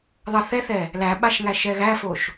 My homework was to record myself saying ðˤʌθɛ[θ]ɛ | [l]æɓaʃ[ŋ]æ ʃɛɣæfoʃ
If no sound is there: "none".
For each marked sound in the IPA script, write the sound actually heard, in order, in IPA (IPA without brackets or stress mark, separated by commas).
θ, l, ŋ